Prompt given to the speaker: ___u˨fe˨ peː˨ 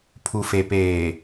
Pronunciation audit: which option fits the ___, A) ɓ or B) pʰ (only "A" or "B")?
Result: B